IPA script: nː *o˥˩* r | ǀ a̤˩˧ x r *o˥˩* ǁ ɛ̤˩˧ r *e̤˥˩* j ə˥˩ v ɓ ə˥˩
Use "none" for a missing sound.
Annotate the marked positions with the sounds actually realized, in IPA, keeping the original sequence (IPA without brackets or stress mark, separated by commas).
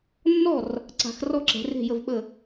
ɔ˥˩, ɔ˥˩, e̤˥˩